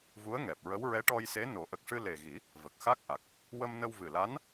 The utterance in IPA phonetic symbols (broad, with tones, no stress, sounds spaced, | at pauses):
v u˧˥ ə̯ ŋ ɛ˨˩ p̚ ɹ ə˧˥ w ɹ ɛ˧˥ ʈ ɔ˧ j s e˧˥ n o˨˩˦ ʔ ə˨˩ k̚ ʂ ɨ˧ l e˨˩ ɣ i˨˩˦ | v ə˨˩ k̚ x a˦˥ k̚ ʔ a˨˩ k̚ | w ə˧ m n ə˧ w v ɨ˨˩ l a˧˥ n